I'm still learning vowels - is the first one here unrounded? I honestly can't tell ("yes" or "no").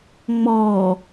no